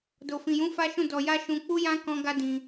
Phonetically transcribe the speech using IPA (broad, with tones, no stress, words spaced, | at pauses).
do˨fĩ˨jũ˨˦ fa˦ʃũ˦˨dɔ˧ja˦ ʃũ˧ k͡pu˦jã˦ kɔ̃˦ɡa˦ dĩ˧